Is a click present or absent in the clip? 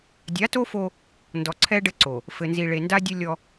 present